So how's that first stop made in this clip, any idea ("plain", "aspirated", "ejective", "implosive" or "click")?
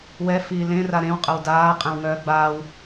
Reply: ejective